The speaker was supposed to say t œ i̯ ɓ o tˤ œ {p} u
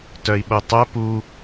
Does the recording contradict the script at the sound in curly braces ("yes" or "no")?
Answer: no